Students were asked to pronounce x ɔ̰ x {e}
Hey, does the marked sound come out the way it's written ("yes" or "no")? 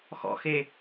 yes